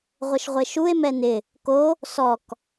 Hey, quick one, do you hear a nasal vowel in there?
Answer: no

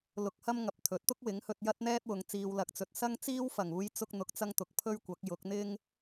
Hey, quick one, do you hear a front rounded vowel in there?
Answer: no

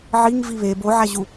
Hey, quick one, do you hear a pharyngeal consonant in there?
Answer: yes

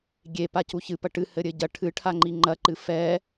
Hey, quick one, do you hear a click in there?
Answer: yes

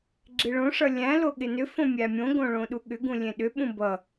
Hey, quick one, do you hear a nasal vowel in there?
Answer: yes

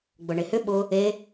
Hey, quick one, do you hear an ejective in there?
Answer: no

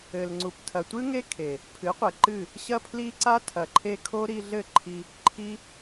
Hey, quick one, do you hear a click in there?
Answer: yes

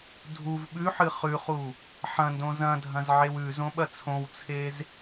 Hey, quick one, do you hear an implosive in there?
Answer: yes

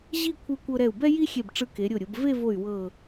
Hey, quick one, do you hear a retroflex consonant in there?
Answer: yes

